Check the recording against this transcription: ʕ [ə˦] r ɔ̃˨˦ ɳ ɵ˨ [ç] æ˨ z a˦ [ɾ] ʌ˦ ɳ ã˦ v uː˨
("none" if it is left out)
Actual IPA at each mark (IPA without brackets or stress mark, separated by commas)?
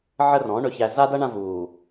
ə˦, ç, d